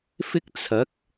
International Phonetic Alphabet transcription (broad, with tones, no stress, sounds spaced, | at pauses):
f ɪ˥ k̚ t͡sʰ ɐ˨˥ k̚